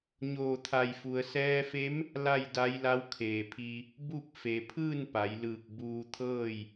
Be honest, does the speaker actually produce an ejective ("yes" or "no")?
no